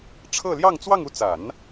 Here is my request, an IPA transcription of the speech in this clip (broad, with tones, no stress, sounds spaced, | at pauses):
ʈ͡ʂʰ ɤ˥˧ l j ɑ˥˧ ŋ t͡s w ɑ˥˧ ŋ u˥˩ t͡s a˨˩˦ n